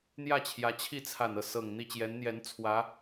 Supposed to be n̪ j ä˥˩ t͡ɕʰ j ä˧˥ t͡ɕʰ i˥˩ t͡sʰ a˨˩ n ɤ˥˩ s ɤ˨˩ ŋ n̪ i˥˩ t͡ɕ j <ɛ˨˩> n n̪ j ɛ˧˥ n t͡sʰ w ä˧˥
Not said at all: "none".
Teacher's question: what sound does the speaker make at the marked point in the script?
ɛ˧˥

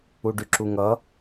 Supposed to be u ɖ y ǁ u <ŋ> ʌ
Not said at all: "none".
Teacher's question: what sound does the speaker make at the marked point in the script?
ŋ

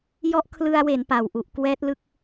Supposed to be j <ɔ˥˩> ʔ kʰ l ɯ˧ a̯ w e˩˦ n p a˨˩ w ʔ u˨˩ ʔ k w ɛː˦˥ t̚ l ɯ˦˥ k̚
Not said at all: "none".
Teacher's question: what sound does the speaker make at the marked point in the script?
ɔ˦˥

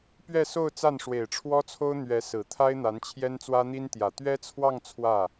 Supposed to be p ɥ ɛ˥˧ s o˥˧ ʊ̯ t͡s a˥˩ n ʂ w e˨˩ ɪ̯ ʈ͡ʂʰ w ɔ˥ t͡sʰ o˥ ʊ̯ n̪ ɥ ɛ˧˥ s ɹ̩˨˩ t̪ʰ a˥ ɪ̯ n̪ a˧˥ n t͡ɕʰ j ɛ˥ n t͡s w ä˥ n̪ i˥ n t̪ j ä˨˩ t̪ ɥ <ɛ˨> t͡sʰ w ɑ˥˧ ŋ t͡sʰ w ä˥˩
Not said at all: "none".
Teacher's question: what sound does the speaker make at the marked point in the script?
ɛ˥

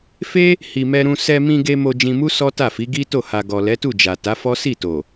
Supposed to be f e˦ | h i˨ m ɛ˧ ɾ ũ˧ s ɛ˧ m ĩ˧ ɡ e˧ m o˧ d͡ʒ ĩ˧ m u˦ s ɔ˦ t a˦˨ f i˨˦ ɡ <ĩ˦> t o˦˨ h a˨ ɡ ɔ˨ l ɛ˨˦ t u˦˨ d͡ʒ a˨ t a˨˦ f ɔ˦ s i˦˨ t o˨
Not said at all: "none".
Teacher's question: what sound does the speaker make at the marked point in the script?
i˦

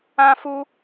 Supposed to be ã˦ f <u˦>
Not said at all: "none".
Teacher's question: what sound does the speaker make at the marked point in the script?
u˦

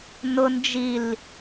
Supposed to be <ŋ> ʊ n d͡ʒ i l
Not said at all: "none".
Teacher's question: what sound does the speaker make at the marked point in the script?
n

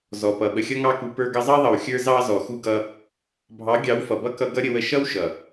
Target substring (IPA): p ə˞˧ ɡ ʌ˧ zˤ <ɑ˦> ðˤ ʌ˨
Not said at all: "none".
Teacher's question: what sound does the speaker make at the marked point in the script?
ɑ˦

